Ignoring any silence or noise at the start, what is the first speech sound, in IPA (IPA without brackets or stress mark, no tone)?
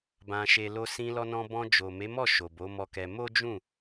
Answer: b